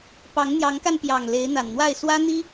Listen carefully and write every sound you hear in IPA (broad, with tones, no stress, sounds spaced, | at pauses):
p ɑ˨˦ ŋ n̪ j ɑ˨˦ ŋ k a˧ n p j ɑ˨˩ ŋ l e˨˦ ɪ̯ n̪ a˨˩ n n̪ w a˥˨ ɪ̯ s w ä˦ n̪ i˦